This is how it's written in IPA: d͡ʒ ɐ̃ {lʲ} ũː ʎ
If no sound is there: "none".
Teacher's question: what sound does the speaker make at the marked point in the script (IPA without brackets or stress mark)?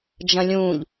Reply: lʲ